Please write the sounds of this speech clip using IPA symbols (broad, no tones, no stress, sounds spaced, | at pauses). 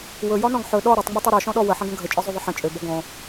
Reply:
w ɵ j ɒ n ɔ̃ ɡ ħ ɵ ɗ ɔ ɾ o tˤ ŋ͡m ɔ tˤ ø ɾ ɔ ʃ ɔ̃ ɗ ɔ w ə ħ ə̃ ɡ ə̃ ɡʱ ə t͡ʃʼ ɒ zˤ ø ðˤ ə ħ ə̃ t͡ʃʼ ø b ɔ ɡ ɔ̃